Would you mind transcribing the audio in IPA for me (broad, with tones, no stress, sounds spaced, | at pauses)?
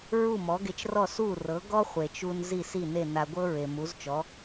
ɹ u˥˩ m ɔ˩˥ ɡ e˧ t͡ʃ r ɔ˥˩ s u˥˩ r ɤ˩˥ ɡ ɔ˥ χʷ e˩ t͡ʃ u˧ n z i˥˩ s i˥˩ n e˥˩ n a˧ ɡʷ ɤ˥ ɹ e˩ m u˩˥ z t͡ʃ ɔ˩˥